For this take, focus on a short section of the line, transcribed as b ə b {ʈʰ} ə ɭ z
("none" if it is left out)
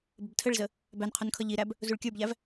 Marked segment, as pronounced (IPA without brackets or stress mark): tʰ